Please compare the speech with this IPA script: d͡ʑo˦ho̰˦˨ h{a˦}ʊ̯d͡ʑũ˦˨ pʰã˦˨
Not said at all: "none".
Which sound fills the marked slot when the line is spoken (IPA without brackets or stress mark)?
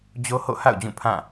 a̰˦˨